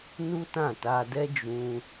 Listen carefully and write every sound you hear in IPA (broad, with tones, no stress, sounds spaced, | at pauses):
n u˦ t ã˦˨ t a˧ d ɛ˦ d͡ʒ ũ˧